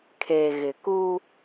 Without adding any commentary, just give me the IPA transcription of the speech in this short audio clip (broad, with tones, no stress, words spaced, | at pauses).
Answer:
kʰeː˨ɣɪ˨kuː˦